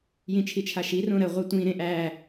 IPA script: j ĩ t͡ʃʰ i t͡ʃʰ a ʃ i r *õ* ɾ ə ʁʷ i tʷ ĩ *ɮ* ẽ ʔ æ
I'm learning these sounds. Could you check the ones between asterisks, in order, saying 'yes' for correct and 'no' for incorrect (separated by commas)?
yes, no